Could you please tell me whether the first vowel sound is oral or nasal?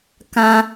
nasal